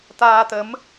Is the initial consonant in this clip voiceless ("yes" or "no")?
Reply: yes